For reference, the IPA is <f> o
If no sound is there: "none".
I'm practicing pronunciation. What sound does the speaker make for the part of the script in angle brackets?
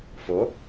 f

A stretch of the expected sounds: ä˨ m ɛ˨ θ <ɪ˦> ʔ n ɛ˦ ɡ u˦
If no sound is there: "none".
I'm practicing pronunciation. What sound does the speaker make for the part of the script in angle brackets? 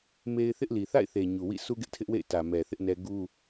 ɪ˦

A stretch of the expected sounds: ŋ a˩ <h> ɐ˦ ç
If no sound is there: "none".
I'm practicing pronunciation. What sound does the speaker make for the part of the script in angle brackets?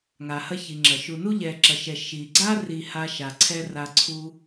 h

